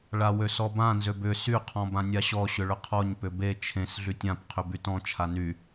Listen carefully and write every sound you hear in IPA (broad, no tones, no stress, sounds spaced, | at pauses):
ɭ a w ø s ɔ b ã n z ø b ʏ s y qʰ ɔ̃ b ã nʲ a ɕ ɔ ɕ ʏ ɭ ʏ qʰ ɔ ɲ p ʏ b e t͡ʃʰ ẽ s ɮ y tʲ ã p qʰ ʏ b y t ɔ̃ t͡ʃʰ a n y